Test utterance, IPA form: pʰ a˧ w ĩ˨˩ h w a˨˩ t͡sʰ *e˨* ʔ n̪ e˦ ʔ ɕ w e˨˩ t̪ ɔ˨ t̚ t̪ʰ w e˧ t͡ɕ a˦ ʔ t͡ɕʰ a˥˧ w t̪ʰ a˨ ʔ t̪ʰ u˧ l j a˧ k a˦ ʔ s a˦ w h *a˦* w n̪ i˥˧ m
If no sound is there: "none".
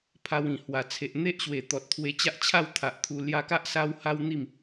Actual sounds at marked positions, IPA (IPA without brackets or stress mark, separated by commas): e˨, a˦